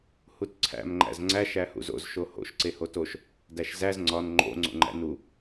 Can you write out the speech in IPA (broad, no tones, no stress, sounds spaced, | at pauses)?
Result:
h u t ǀʰ æ̰ m ŋ͡ǃ æ̰ z ŋ͡ǀ æ ʃ æ h ṵ z o̰ z ʃ o h o̰ ʃ ǀ e h o t o ʃ | d æ ʃ z æ z ŋ͡ǀ ɒ n ŋ͡ǃ o̰ ŋ͡ǀ o̰ ŋ͡ǃ æ̰ n u